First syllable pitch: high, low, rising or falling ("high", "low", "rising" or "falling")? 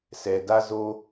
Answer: low